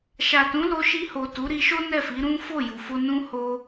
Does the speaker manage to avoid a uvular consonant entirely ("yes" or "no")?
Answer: yes